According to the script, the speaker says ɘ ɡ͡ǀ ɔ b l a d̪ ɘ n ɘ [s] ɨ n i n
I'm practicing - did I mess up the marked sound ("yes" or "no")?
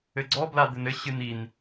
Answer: yes